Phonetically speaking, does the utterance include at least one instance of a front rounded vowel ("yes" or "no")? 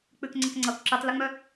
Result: yes